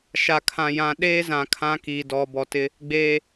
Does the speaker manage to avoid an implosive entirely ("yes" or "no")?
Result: no